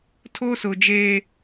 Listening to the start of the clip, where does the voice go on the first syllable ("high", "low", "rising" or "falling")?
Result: high